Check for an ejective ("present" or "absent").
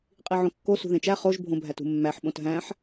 present